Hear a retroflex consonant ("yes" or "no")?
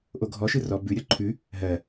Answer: no